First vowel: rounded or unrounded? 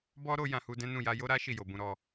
rounded